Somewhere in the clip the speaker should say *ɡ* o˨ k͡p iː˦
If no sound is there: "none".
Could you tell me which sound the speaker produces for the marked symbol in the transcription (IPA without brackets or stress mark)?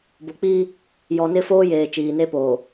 b